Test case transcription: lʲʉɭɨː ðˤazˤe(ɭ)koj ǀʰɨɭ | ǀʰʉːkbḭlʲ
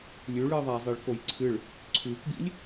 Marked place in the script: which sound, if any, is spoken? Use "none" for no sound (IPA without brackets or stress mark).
ɭ